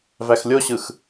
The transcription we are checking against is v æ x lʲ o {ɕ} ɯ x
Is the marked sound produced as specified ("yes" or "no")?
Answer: yes